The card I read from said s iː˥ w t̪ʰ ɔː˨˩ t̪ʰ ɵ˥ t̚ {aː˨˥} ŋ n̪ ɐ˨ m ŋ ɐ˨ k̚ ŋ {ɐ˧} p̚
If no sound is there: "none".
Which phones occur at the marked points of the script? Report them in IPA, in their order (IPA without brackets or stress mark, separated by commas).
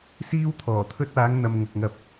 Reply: aː˨˥, ɐ˧